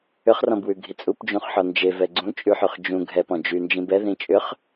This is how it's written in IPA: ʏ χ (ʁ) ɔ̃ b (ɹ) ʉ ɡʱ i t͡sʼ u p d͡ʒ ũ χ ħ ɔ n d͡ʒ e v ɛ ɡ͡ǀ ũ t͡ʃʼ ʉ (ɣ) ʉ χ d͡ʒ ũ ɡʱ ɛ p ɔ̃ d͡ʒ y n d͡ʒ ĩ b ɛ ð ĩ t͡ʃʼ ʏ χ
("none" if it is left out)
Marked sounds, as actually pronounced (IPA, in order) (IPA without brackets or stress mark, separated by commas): r, w, ħ